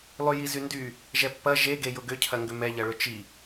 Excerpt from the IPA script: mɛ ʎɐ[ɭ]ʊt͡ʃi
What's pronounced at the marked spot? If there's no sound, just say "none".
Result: ɭ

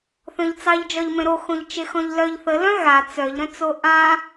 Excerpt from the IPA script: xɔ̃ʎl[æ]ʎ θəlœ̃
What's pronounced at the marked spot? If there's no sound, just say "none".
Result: œ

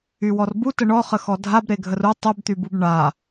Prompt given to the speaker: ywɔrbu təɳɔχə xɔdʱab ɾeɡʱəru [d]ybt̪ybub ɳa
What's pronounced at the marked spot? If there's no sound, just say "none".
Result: tˤ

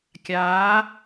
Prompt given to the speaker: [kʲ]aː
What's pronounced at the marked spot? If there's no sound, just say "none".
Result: kʲ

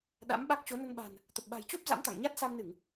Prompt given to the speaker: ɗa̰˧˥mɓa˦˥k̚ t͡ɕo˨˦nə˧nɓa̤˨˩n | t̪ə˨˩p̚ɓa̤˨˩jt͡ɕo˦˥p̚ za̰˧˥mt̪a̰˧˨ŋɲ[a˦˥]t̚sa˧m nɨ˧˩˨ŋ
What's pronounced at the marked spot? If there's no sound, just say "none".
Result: a˦˥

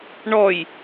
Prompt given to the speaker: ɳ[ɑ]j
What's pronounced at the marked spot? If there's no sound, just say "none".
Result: ɔ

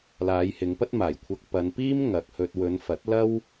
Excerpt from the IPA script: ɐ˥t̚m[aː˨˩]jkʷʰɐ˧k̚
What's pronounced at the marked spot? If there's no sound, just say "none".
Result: aː˨˩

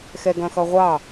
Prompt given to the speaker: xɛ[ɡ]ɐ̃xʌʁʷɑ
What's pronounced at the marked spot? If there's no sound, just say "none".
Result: ɡ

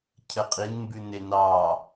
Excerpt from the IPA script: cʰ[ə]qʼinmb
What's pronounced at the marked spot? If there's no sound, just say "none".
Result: ə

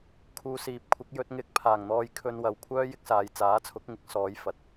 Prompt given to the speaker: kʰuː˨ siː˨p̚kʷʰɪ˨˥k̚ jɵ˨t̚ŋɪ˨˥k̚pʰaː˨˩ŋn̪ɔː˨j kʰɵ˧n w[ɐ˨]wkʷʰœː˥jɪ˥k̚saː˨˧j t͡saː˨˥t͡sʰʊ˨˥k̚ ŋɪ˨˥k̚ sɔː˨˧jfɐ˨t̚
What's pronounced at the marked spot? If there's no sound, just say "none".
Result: ɐ˨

